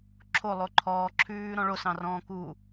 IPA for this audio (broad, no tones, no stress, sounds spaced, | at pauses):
ǁʰ o lˠ o ǃʰ ɔː ǁʰ ʉː ɾ ɔ̃ ɭ o s ɑ̃ r ɔ̃ː k u